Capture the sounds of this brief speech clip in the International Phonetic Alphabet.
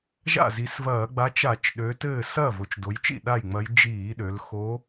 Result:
ʒ a̰˥˩ z i˩˧ s v ɐː˧˩˧ ɡ͡b a˧˥ t͡ʃ a˧˩˧ t͡ʃ ɗ ø˩˧ t ɘː˥˩ s ɐː˥˩ v o˧˩˧ t͡ʃ d o˩˧ j t͡ʃ ḭ˥˩ ɗ a˥˩ j ŋ͡m ɐ˧˥ j d͡ʒ iː˧˩˧ ɗ ø˩˧ l x o˧˥

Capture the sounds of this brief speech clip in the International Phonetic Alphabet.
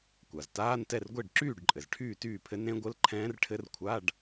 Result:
kʷ a˩ z t aː˧˥˧ n t ɛ˥˨ r ɡʷ e˥˨ ɖ ǁ yː˥˨ ɖ ǃʼ ɘ˩ z ʈʰ yː˥˨ t yː˥˨ pʰ ɘ˦˥ n ɾ ẽ˦˥ ɡʷ ɘ˧˥˧ l ǃʰ ɛ̃ː˦˥ r ʈʰ ɘ˦˥ r kʷʰ a˧˥˧ ɖ

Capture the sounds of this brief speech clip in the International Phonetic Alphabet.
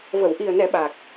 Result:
v ə˨˩˨ w ʔ i˨˩ ə̯ n ɛ˨˩˦ ɓ a˨˩ k̚

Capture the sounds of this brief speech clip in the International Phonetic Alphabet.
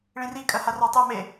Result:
ɭ ĩ r i kʼ ɜ h a r ɑ tˤ u m e

